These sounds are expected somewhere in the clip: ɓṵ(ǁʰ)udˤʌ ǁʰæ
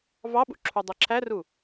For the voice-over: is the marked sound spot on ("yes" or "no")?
yes